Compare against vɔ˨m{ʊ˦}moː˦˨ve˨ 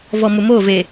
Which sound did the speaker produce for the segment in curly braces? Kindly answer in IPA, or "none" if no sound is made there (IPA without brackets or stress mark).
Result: ʊ˨